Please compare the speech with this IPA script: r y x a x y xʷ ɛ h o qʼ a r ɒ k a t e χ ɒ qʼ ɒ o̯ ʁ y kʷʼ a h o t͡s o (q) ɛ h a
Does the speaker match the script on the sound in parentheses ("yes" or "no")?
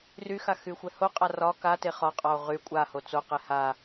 yes